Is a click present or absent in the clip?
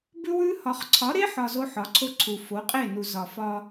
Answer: present